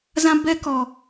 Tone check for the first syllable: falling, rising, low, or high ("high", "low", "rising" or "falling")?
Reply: high